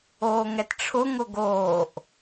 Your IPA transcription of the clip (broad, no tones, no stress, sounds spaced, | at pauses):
oː ŋ ɛ t ʈ͡ʂʰ ʊ ŋ ʊ ɡ oː ʔ